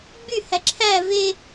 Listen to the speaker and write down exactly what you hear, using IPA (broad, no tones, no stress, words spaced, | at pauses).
ɡ͡byhæ ǁʰæ ve